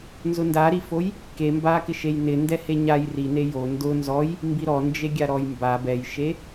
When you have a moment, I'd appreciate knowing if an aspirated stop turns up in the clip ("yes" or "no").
no